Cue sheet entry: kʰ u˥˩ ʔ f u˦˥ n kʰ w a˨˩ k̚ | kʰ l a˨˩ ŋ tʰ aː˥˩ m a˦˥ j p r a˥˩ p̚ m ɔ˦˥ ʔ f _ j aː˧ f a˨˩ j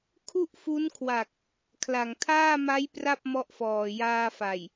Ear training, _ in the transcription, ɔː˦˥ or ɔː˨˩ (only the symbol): ɔː˨˩